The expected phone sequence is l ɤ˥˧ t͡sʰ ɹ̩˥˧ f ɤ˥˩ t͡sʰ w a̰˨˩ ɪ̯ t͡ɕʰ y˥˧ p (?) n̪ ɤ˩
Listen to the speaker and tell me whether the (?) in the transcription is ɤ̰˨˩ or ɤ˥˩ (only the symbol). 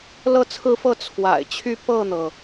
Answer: ɤ˥˩